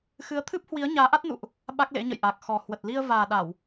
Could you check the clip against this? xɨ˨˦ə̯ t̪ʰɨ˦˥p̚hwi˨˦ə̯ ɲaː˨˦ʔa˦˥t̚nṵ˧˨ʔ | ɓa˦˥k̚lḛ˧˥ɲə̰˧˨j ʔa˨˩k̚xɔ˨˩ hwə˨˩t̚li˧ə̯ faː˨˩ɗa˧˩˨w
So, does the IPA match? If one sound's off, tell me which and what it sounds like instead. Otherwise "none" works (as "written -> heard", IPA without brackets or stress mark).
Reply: f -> v